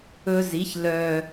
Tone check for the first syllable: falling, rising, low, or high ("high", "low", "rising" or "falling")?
high